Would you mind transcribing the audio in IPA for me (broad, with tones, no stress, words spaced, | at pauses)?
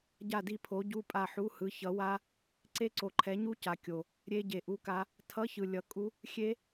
ɟa˦˨di˦˨pʰo˨˥ ɟu˧˥˧pʼa˦˨ħu˧˥˧hɯ˨˥ çʌ˨˥ wa˦˥ | ǀe˦˥ǀo˨ǃʰɛ˨˥ɲu˦˥ ca˨˥ kʲo˨ | ɾʲe˦˥ɟe˨ʔu˧˥˧ka˦˥ | tʰʌ˧˥˧çɯ˨ lʲʌ˨˥kʼu˦˥ | xʲe˦˥